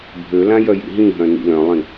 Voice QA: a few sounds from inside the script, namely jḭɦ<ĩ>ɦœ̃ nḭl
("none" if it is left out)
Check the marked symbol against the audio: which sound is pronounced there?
ĩ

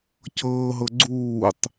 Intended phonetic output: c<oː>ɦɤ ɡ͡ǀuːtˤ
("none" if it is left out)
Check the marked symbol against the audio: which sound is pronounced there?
ɤː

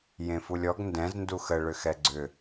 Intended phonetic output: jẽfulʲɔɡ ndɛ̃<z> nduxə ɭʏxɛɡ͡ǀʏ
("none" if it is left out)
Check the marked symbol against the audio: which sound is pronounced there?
z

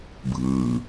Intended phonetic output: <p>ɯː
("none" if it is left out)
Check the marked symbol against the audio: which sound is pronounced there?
bʱ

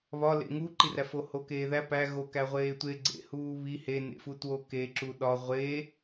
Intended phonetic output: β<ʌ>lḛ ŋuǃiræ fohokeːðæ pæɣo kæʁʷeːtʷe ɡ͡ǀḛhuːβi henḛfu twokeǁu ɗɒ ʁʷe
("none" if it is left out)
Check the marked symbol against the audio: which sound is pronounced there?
ɒ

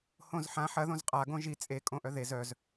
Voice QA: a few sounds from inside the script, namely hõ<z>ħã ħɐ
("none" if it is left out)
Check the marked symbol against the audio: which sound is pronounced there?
z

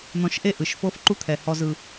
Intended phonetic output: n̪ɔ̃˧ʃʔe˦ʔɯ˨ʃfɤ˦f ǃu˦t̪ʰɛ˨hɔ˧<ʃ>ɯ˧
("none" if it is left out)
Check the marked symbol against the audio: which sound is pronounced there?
z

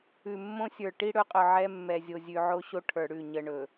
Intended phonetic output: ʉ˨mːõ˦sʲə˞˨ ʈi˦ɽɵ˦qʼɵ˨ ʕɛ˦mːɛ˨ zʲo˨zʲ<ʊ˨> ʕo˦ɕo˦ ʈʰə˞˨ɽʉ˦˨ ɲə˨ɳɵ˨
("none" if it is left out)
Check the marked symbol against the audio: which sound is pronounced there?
ʉ˨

